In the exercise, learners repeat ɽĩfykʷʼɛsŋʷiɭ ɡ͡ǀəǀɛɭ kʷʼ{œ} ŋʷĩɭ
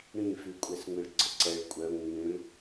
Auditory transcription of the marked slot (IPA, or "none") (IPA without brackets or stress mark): œ